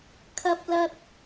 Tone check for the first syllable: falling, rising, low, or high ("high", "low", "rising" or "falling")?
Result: high